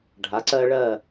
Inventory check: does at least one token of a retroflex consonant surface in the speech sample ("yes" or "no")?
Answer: yes